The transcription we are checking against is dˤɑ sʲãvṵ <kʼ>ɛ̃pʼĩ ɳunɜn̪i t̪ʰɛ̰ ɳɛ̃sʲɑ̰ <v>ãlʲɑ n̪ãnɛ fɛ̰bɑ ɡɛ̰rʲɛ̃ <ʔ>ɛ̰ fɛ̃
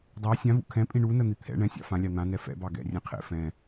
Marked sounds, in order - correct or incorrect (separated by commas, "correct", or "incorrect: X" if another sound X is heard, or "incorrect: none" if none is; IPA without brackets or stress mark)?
incorrect: kʰ, incorrect: f, incorrect: qʰ